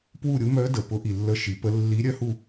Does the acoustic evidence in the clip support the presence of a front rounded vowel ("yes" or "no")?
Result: yes